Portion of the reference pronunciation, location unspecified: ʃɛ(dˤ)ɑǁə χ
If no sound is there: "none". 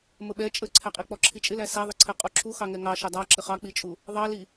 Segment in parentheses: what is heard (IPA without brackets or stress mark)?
dˤ